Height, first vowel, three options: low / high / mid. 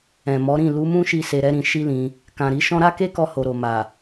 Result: mid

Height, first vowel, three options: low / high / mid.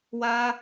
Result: low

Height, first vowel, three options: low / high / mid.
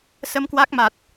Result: mid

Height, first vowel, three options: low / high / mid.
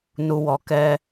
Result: high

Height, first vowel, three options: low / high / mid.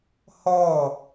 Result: mid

